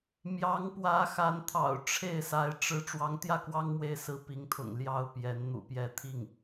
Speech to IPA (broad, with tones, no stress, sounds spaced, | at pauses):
m j ɑ˧˥ ŋ p w ä˧˥ x a˧˥ n t̪ʰ ɑ̰˨˩ ʊ̯ ʈ͡ʂʰ e˥˩ ɪ̯ s a˧˥ ɪ̯ ʈ͡ʂ ɻ̩˥ ʈ͡ʂ w ɑ˧˥ ŋ t̪ j ä˥˩ k w ɑ˥ ŋ m w e˧˥ ɪ̯ s ɹ̩˥ p i˧˥ ŋ t̪ʰ ʊ̰˨˩ ŋ l j ɑ˥˩ ʊ̯ p j ɛ˧˥ n n̪ ṵ˨˩ p j ɛ˧˥ t̪ʰ i˥˩ ŋ